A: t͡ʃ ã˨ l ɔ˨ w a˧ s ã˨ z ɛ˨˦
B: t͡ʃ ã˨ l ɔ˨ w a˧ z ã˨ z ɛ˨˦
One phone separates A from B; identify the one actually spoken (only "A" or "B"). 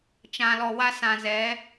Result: A